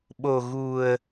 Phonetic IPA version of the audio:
ɓ o˨˩ ɣ u˨˩ ə̯

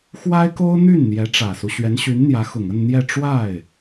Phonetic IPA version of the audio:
x w a˥ ɪ̯ k o˥ ʊ̯ n̪ y˥˩ n n̪ j ɛ˧˥ ʈ͡ʂ ä˨˩ s u˦ ɕ ɥ ɛ˧˥ n ɕ y˧˥ n n̪ j ä˧˥ x ʊ˨˩ ŋ ə˥˧ n n̪ j ɛ˥˧ ʈ͡ʂ w a˥˩ ɪ̯

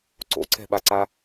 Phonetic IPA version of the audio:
ǀ o̰ ǀ ɛ̤ ɓ a ǀ a

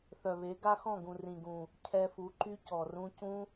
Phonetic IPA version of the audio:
θ œ˨ β e˨˦ ɡ a˦ x ɔ̃˦˨ ɡ ũ˨ r ĩ˨ ɡ ũ˨ | cʰ ɛ˧ f u˨˦ ǃ y˦ c ɔ˨ r ũ˦ c ũ˦

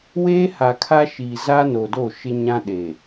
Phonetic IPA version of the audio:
w eː˦ h a˨ kʰ a˦ ʃ iː˨ z a˦ n o˨ d o˦˨ ʃ ɪ˦ ɲ ã˦ ɗ eː˨

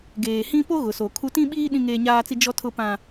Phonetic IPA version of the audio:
ɡ eː˨ h ĩ˦ p o˦ ɣ ʊ˨ s o˨ kʰ u˦ t ĩ˦ ɓ iː˦ ɗ ĩ˦ ŋ eː˦ ɲ aː˦ t͡s i˦ d͡ʒ ɔ˦ tʰ ʊ˦ p ã˦

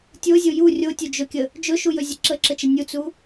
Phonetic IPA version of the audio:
tʲ o zʲ o j u rʲ o tʲ o d͡ʒ ɵ kʲ ə | d͡ʒ ɵ ʃ u j ɵ zʲ ə ǁ ə ǁ ə t͡ʃ ə nʲ u t͡s u

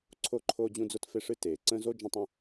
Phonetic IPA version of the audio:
ǀʰ o˥ ǃʰ oː˥ d͡ʑ ũ˥ d͡z ʊ˥ t f e˥ ʂ ɨ˥ t eː˩ ǀ ə̃ː˥ z o˥ d͡ʒ ə̃˥ tˤ ə̃˥

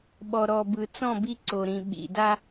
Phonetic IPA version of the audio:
ɓ ɔ˨ ɾ ɔ˨ b ɯ˨ t͡s ɔ̃˦˨ b i˦ ǀ o˨ ɾ ĩ˨ ɓ ḭ˨ d a˦

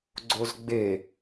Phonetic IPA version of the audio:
ɡ͡ǀ o z ɡ͡b e

